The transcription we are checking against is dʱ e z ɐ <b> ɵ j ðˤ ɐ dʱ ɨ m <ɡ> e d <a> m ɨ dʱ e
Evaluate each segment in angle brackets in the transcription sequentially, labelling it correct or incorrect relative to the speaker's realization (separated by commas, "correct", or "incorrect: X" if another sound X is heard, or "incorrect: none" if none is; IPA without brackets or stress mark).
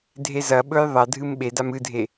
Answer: incorrect: ɓ, incorrect: ɓ, correct